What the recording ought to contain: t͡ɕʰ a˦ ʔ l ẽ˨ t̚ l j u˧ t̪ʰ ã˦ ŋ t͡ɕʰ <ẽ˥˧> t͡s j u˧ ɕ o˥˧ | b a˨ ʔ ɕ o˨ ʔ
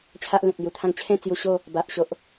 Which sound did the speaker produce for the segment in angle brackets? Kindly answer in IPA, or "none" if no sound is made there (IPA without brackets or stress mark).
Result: ẽ˥˧